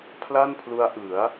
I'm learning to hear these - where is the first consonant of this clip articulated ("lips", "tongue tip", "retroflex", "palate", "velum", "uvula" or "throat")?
lips